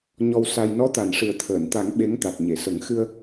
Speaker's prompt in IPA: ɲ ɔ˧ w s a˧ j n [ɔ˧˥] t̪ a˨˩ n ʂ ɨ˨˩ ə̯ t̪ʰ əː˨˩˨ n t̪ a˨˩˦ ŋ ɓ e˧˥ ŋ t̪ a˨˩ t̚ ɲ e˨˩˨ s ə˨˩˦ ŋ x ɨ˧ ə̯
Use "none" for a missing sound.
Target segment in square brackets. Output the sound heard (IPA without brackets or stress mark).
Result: ɔ˧˥